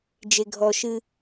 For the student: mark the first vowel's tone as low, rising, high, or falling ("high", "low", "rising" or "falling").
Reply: low